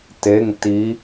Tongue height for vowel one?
mid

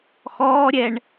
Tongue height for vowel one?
mid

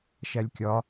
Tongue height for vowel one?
low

